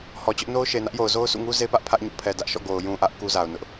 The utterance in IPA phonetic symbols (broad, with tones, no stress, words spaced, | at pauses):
hɔ˨t͡ɕʊ˦ʔ no˦ʊ̯ʃe˨nä˦ʔjo˨ʊ̯ zo˦ʊ̯sʰṵ˦˨ŋu˦ ze˦pä˦ʔ pʰä˦ʔ ɲṵ˦˨ pʰɛ˨dä˦ʔʃɔ̰˦˨ ɡo˨ʊ̯jũ˨ʔä˦ʔ ku˦za˨ʊ̯nʊ˦ʔ